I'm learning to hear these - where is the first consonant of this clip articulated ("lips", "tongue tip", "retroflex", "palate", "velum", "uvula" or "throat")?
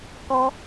velum